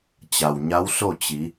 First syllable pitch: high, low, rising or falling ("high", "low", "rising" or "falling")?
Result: low